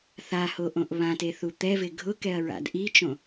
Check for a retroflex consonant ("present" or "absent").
absent